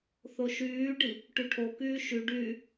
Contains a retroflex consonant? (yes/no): yes